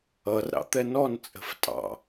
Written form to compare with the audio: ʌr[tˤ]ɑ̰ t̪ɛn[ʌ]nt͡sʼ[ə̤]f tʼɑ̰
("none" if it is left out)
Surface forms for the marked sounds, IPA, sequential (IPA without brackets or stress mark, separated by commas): ɾ, ɔ, ə̤